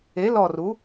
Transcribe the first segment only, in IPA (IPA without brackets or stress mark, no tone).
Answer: e